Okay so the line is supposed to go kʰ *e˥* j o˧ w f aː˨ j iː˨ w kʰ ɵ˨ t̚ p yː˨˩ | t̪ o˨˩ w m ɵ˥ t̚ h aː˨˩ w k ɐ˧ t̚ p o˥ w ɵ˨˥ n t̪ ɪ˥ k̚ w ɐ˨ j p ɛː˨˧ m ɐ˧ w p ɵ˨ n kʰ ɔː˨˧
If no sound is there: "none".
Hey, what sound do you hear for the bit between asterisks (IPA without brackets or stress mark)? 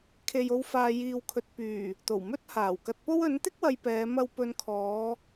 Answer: e˨